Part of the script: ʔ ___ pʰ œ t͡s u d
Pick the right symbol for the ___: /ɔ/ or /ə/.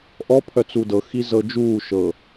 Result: ɔ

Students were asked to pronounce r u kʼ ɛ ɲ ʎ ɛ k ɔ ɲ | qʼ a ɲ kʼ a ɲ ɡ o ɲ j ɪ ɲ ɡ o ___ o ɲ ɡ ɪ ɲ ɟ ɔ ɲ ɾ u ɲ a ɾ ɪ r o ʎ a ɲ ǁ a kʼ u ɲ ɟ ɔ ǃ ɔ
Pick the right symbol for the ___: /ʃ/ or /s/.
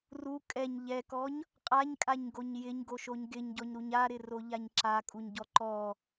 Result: ʃ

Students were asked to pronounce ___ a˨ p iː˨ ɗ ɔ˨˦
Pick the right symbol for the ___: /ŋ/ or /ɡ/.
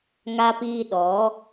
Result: ŋ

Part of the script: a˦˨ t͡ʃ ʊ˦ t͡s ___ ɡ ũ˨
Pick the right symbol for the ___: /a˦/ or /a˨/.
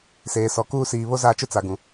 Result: a˨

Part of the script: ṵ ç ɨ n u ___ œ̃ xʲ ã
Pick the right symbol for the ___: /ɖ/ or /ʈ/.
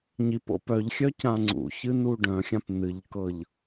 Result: ɖ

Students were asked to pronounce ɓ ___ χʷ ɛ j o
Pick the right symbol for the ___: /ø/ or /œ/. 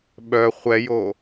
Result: œ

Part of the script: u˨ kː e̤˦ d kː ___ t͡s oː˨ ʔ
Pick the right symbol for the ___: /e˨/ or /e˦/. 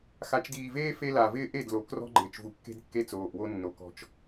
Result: e˦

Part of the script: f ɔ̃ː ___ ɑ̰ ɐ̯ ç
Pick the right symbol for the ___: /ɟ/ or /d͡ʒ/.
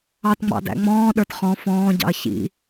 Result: ɟ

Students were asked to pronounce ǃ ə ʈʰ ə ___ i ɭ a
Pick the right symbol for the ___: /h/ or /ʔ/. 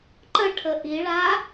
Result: ʔ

